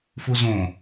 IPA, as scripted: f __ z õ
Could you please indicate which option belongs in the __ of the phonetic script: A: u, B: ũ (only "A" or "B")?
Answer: A